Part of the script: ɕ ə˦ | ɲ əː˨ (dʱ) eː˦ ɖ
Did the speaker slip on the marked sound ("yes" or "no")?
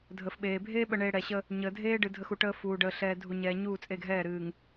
no